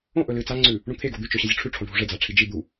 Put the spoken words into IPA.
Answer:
õ ʔɵlɨt͡saŋ͡ǀʉ | ɳũt̪ʰe ɡod̪ʉt͡ʃɵ ɕɐzʲoʈ͡ʂʰʉ ʈ͡ʂʰõɖʱuʐe d͡zaʈ͡ʂʰid͡ʒi d̪u

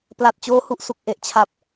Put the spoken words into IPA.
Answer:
pla˨˩t̚ t͡ɕoː˦˥ hu˨˩ʔsu˨˩k̚ ʔe˨˩ʔt͡ɕʰa˨˩p̚

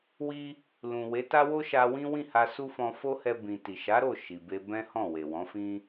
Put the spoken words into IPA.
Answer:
wi˦ | lũ˨we˨˦ta˦wo˦ ʃa˧wĩ˦ wĩ˦˨ ha˧su˦fɔ̃˧ fo˦hɛ˧ bĩ˨ ti˨ʃa˨˦ɾo˦˨ ʃi˨be˧ bɛ̃˦hɔ̃˦˨we˨wɔ̃˨˦ fĩ˦

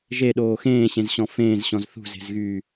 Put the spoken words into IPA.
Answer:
ʒeɗoː xẽːɕẽzɕɔ̃ fẽːzɕɔ̃z θṳze̤zɣyː

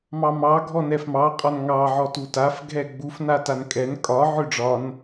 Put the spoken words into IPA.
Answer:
mɑmɑ ɡʱɔnɛfmɑ qʼɒnŋɑʕɔtu taf ɡʱɛɡ͡bufna tankʼɛn kʼɒ ʕøɖ͡ʐɒn

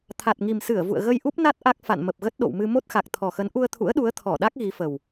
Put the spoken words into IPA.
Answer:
t̪ʰa˨˩t̚ŋi˨˩msɨ˧˩ə̯vṵ˧˨ə̯ ɣə˧jʔu˦˥p̚na˦˥t̚ ʔa˦˥k̚ fa̰˧˨nmə˨˩p̚ɣə˦˥t̚ ɗo̰˧˨wmɨ˧ mo˦˥t̚xa˨˩k̚t̪ʰɔ˨˩xə˨˦n ʔu˧ə̯t̪ʰṵ˧˥ə̯ɗu˨˦ə̯ t̪ʰɔ˧˩ɗa˦˥k̚ ɣi˨˦fə˨˩w

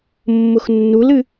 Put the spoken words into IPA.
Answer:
mːʊxnːulɨ

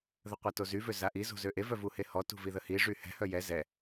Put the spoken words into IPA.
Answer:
ðəqʷɛtozy vøzaʔi zo̤zøʔe vœvuhehɔ tṳviðəhi ʐyhɛ̤ hœjɛ zɛ

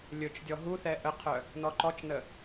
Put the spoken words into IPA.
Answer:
lʲɵt͡ʃdʲɔ ɦuθɛ ʔəqʰœ | nɔǃɔt͡ʃnə

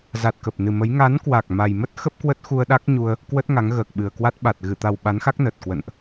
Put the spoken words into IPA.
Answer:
za˨˩t̚kə˨˩p̚nɨ˨˩ mə˨˦j ŋa˨˦nkwa˨˩k̚ ma˨˩jmə˦˥t̚ xə˦˥p̚kwə˦˥t̚ xu˧ə̯ɗa˦˥k̚ɲu˧ə̯ | kwə˦˥t̚ ŋa˨˦ŋ ɣəː˨˩k̚ɓɨ˨˩ə̯kwa˦˥t̚ ɓa˨˩t̚ ɣɨ˧˩t̪a˨˩w ɓa˨˦nxa˦˥k̚nəː˨˩t̚kwə̰˧˨nʔ

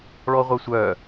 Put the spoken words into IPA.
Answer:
ɭɔʁʷɤsʷœ

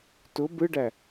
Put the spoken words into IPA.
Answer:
tʊ bɯɖæ

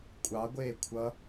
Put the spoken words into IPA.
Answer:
kʷʼɑɡʷeː kʷʰʌ

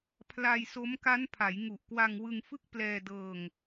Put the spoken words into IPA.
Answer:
pʰla˧jso˦˥m ka˦˥npʰa˩˦j ŋu˨˩ʔkwa˧ŋ wɯ˧ŋfɯ˥˩k̚plɛː˧dɤː˧ŋ

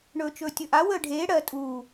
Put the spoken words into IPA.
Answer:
ɳɵːt͡ʃɵːtʲɵʔa wəːɖʱeː ɽɜ tʼuː

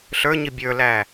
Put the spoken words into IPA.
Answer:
ɬə˞ɲi bʲə˞læ

